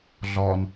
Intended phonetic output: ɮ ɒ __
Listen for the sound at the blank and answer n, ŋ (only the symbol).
n